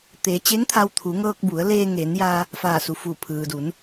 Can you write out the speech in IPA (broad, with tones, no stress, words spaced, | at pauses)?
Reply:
t̪eː˩˧t͡ɕe˧˥ŋt̪ʰa˧w t̪ʰu˩˧ ŋɤː˧k̚bu˩˧ə̯leː˧ ŋeː˩˧njaː˧ | faː˧˩su˩fu˧˩ pʰɯː˩du˩˧n